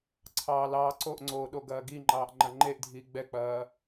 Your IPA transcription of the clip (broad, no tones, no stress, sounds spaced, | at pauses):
ǀʰ ɑː l ɑː ǀ o ʔ ŋ͡ǀ oː ɗ o ɡ ɐː ɡ i ŋ͡ǃ ɑː ʔ ŋ͡ǃ ɐ ŋ͡ǃ e ʔ dʱ iː ɡ͡b ɛ k͡p ɐː